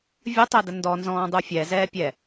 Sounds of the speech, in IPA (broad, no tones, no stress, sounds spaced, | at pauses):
vʲ ə tˤ ɛ d ə n d ɔ n z ɔ̃ː dˤ u fʲ ɛ z ɛː pʲ ɛ